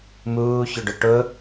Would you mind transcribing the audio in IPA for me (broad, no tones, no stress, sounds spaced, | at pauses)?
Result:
m uː ç ʏ ɖ ʊ ʈ ʊ